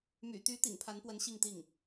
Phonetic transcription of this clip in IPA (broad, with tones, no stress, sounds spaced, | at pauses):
m y̰˨˩ t̪ y˧˥ t̪ ḭ˨˩ ŋ pʰ a˧˥ n p w ə˧˥ n ɕ i˥˧ ŋ t̪ i˥˩ ŋ